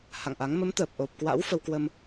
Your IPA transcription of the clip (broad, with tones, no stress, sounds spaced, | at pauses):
h a̰˧˨ ŋ ʔ a˨˦ ŋ m ə˨˦ m t̪ əː˨˩ p̚ ʔ o˨˩ p̚ k w a̰˧˥ w f ə˧ w k w ə˧ m